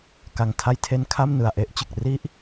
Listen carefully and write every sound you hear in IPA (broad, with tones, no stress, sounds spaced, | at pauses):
k a˨˩ ŋ tʰ a˧ j tʰ e˧ n kʰ a˥˩ m n ɯ˨˩ a̯ ʔ e˦˥ ʔ t͡ɕ ɯ˨˩ k̚ r i˥˩ ʔ